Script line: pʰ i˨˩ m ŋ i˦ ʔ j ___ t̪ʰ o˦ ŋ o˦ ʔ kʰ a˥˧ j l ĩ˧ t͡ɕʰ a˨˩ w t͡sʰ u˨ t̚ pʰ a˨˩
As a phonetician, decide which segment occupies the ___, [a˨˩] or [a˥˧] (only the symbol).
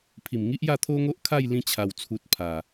a˥˧